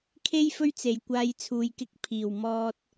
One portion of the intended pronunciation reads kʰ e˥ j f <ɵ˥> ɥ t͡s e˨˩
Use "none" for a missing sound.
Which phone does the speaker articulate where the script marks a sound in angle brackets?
ɵ˥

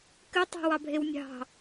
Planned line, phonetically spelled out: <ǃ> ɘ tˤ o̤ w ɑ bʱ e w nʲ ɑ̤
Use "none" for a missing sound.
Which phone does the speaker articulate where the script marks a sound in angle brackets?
k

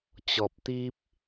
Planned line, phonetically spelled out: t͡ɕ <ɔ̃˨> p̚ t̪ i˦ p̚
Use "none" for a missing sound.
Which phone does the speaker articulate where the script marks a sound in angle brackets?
ɔ˨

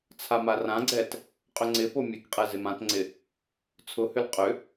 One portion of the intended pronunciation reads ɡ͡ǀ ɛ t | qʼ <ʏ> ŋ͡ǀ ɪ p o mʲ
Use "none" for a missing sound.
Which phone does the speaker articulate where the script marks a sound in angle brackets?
ʏ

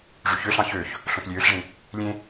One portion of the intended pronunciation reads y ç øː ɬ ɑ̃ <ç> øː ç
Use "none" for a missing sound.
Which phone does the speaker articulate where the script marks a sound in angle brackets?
ç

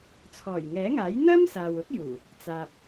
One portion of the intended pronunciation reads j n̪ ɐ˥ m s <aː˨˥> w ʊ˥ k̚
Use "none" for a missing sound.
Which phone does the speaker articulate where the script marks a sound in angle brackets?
aː˨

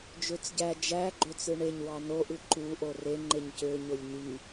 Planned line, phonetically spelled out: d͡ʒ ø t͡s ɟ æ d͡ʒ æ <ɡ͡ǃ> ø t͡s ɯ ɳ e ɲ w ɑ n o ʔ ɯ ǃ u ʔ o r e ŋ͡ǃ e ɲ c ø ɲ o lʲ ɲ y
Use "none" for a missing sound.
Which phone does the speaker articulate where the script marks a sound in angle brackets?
ɡ͡ǃ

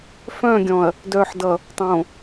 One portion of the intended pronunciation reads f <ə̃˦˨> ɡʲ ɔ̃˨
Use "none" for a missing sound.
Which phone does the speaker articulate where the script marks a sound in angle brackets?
œ̃˦˨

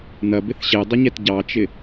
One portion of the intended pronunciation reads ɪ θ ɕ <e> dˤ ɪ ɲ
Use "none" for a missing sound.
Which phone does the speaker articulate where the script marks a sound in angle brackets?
e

